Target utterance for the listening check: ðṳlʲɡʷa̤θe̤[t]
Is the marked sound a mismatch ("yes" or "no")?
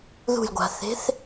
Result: yes